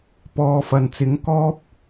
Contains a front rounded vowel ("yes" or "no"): no